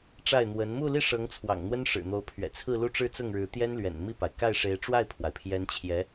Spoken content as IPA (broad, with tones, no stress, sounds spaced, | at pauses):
ʈ͡ʂ a˥˩ ɪ̯ n̪ w ə˧˥ n m u˥˧ l i˥˩ ʂ ɤ˧˥ ŋ t͡sʰ w ɑ̰˨˩ ŋ n̪ w ə˥ n ʂ ɻ̩˨˩ n̪ o˧˥ ʊ̯ pʰ ɥ ɛ̰˨˩ t͡sʰ ɹ̩˥˧ l u˥˧ ʈ͡ʂ ɻ̩˥˧ t͡s ʊ˥˩ ŋ ɻ ɻ̩˧˥ t̪ j ɛ˥ n l ɥ ɛ̰˨˩ n m i˥˩ p a˩ ɪ̯ k a˥˩ ɪ̯ ʂ e˧˥ ɪ̯ ʈ͡ʂ w a˥˩ ɪ̯ pʰ w a˩ ɪ̯ pʰ j ɛ˧˥ n t͡ɕʰ j ɛ˧˥